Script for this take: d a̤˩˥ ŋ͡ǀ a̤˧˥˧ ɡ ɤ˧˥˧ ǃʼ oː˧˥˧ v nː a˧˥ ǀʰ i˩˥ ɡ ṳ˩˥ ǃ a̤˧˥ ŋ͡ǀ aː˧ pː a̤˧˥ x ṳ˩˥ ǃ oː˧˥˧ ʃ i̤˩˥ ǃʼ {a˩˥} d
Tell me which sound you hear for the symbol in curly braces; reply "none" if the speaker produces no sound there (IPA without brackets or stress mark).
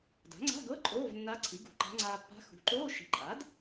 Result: a˩˥